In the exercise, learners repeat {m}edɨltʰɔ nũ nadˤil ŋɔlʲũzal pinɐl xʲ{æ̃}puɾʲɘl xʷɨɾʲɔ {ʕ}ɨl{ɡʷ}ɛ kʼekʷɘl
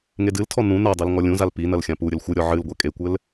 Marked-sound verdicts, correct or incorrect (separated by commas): incorrect, incorrect, correct, correct